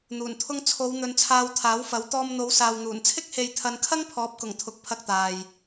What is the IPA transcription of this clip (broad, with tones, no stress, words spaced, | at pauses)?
n̪uː˨˩nt̪ʰʊ˧ŋ t͡sʰo˨˧w n̪ɵ˧nt͡sʰaː˧wt̪ʰaː˨˥wfɐ˨˥w t̪ɔː˧mn̪o˨˧wsaː˨w n̪uː˨˩nt͡sʰɪ˥k̚ he˧jt̪ʰɐ˧n kʰɐ˥ŋpʰɔː˨˥p̚kʊ˨˩ŋ t̪ʰʊ˨˥k̚ pʰɐ˧k̚t̪aː˨j